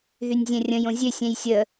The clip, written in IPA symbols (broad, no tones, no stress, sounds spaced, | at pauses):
ð y nʲ zʲ ɛ̃ rʲ ə̃ j õ zʲ ø sʲ ɛ̃ j sʲ ə